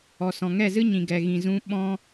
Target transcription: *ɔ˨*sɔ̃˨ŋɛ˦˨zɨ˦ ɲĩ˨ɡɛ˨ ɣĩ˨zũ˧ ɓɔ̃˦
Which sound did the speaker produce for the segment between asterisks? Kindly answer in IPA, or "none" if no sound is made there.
ɔ˨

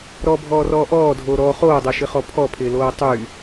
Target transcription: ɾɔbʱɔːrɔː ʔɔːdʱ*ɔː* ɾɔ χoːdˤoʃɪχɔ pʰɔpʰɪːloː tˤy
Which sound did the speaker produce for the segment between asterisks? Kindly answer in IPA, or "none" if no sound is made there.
oː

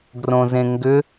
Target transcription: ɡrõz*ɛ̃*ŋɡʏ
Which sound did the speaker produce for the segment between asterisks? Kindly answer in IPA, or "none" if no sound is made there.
ẽ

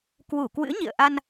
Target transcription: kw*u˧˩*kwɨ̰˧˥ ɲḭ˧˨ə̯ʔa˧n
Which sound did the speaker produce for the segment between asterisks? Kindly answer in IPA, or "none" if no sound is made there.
u˧˩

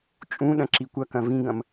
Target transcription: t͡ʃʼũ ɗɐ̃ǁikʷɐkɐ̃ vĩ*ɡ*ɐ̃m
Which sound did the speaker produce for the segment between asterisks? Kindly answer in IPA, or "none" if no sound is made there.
ɡ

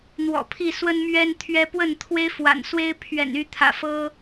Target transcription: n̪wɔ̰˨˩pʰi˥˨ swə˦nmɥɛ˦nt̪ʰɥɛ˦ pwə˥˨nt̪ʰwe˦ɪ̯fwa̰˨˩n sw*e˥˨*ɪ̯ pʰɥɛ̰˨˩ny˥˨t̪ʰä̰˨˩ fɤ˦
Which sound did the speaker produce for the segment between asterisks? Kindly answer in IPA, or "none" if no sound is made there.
e˦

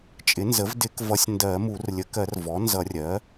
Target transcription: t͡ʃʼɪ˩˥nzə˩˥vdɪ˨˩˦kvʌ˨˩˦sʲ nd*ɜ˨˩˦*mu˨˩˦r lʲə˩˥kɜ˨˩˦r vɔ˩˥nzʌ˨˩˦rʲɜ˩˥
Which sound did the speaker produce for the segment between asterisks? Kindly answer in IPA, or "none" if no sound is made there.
ɜ˨˩˦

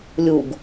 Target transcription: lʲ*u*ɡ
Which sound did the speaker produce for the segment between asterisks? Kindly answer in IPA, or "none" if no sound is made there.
u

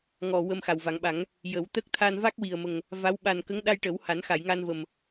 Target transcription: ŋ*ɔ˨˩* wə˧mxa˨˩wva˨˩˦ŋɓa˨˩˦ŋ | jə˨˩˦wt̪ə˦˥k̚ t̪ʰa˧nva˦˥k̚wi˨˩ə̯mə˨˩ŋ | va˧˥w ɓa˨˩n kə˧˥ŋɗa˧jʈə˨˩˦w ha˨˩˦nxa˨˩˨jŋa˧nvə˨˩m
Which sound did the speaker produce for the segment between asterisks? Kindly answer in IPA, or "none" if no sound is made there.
ɔ˨˩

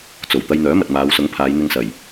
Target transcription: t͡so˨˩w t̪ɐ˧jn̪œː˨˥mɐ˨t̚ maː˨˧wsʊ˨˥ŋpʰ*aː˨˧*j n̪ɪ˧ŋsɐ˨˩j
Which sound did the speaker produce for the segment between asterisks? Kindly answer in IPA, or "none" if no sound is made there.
aː˨˧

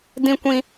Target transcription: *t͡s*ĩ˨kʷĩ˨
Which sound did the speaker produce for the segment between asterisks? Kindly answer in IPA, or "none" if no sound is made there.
d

